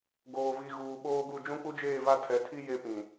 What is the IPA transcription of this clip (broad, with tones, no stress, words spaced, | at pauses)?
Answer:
ɡoː˨vi˨ ɣuː˨ɓoː˦ɡu˦˨ d͡ʒũ˦k͡pu˦d͡ʒeː˦˨ va˦tʰɛ˨ tʰi˦ je˦pĩ˨